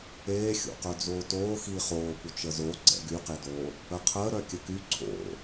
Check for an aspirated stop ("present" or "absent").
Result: present